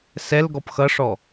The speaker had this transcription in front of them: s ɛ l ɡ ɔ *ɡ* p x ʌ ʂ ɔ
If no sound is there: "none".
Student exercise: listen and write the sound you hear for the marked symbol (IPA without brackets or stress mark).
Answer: none